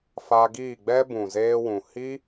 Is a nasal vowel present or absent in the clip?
present